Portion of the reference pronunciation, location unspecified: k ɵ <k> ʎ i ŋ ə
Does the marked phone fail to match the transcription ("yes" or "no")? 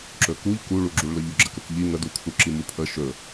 no